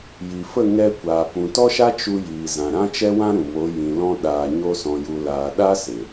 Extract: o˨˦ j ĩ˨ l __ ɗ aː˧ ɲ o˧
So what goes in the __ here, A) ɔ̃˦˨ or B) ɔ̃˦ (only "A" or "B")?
B